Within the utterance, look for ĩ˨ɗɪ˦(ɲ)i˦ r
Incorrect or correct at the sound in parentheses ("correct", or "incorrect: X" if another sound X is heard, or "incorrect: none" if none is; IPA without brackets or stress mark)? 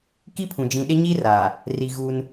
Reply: correct